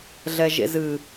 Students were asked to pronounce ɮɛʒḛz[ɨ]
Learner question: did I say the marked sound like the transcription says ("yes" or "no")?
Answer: yes